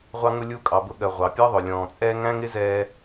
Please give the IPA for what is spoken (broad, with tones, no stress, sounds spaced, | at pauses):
ʁʷ ɑ˧ ŋ ʊ˧ lʲ u˧ kʼ ɑ˨ b ʊ˧ ɠ ɜ˨ ʁʷ ɑ˨ pʲ ɒ˦ ðˤ ʊ˨ lʲ ɔ̃ː˨ t͡sʼ ɛː˦ ŋ æ̃˦ ŋ ɪ˦ z ɛː˧